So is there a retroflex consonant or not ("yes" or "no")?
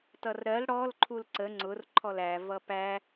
yes